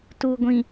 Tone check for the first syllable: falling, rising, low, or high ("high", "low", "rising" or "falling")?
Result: low